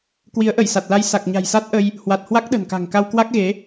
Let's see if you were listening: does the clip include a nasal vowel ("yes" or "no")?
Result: no